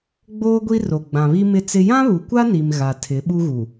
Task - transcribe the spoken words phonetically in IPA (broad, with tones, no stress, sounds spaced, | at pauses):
ɡ͡b oː˦ ɡʷ i˦ r o˨ ɡ͡b ã˨ β i˦ m ɪ˦ t͡s ɪ˦ j ã˦ β u˨ kʷ a˦ n i˨ m ɣ a˨ tʰ ɪ˨˦ ɓ u˦ ɣ u˨